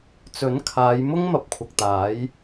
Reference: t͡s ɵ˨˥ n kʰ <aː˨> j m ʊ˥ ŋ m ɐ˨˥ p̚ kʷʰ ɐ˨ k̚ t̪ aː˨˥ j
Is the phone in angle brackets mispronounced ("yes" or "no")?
yes